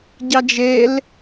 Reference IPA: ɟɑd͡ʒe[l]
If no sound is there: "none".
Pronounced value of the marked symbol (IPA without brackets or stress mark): l